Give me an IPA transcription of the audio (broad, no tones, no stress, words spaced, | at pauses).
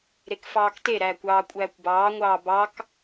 ɾekfɑːkteɾæːkʷ ɑːkʷʼæːkʷbɑːŋʷɑː bɑk